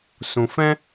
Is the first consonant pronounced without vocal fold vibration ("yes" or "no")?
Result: yes